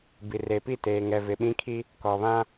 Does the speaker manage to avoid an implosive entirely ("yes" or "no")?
no